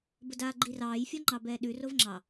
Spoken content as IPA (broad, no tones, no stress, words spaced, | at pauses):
bədaːɡ͡ǃirɑːj fʲɒŋ͡ǃɑbɛːɗʉ rovŋ͡ǁɑ